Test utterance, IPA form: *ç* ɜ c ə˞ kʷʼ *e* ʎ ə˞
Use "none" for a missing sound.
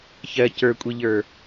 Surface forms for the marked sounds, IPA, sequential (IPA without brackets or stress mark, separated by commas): ç, i